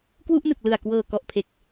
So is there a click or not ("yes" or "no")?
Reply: no